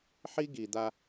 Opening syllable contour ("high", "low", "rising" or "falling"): high